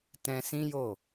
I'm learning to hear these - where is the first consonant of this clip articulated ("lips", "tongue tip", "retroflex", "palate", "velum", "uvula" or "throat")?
tongue tip